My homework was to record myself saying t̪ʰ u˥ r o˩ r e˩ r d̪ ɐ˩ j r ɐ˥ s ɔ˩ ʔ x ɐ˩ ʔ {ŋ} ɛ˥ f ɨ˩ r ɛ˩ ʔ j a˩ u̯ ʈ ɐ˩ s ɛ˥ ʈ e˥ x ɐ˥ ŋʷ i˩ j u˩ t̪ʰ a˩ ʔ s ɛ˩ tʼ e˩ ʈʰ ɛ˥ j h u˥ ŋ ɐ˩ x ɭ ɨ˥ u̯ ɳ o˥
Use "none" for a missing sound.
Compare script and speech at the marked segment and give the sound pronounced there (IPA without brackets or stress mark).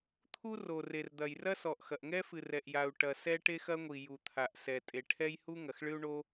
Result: ŋ